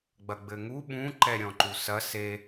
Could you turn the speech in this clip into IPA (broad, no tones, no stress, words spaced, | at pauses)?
ɡ͡bɐɡ͡bɘŋu ɓũ ǃɛɾʲɔ̃ǃusɐ se